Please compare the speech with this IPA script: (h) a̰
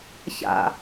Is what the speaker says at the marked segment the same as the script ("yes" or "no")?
no